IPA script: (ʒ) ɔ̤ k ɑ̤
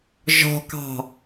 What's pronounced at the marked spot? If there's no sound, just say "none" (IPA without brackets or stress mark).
ʒ